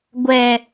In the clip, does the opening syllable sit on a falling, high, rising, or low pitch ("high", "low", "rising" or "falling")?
low